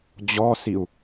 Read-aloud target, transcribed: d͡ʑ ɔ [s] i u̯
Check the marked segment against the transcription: correct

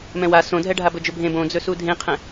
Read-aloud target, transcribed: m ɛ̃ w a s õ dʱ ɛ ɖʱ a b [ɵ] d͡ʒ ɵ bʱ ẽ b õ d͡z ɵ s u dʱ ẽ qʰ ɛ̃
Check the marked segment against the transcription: correct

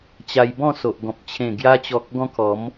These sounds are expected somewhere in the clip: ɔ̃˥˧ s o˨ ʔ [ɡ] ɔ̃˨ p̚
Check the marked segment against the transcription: correct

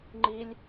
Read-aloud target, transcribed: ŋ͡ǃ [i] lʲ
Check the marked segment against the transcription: correct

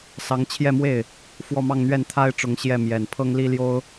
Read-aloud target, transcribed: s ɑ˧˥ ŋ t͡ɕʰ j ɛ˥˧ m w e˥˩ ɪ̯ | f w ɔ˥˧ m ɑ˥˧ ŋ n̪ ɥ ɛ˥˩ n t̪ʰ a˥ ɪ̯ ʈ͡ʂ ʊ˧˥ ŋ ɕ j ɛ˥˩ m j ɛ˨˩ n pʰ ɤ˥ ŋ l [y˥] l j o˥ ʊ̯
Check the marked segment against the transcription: incorrect: i˥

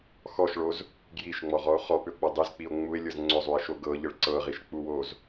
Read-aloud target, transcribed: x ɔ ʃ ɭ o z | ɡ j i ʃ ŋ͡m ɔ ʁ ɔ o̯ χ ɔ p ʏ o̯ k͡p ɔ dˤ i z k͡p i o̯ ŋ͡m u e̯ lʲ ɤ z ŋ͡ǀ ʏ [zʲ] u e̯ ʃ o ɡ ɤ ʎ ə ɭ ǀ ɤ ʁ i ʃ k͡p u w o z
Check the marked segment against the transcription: incorrect: zˤ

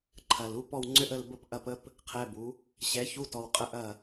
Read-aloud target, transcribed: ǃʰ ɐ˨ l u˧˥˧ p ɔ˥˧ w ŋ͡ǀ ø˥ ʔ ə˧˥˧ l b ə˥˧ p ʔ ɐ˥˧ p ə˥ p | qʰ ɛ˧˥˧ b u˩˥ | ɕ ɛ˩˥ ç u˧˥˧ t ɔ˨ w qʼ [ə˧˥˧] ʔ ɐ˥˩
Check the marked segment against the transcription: correct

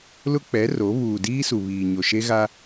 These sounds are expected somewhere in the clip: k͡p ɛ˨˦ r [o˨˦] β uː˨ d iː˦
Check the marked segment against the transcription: correct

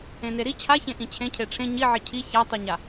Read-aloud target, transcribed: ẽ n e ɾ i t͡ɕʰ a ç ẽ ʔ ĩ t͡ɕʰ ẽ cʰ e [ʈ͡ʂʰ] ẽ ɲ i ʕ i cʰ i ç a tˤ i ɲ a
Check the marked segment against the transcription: correct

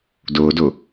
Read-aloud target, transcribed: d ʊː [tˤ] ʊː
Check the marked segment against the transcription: incorrect: d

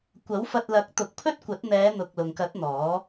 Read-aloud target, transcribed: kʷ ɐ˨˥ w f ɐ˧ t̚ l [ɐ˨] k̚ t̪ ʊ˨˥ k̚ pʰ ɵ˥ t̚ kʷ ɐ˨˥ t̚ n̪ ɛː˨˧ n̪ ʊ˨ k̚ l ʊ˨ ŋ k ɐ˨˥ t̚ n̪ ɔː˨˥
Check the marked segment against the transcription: incorrect: ɐ˨˥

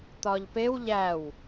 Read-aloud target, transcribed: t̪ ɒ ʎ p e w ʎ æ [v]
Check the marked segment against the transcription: incorrect: w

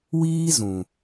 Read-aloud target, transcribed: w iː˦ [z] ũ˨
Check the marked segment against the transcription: correct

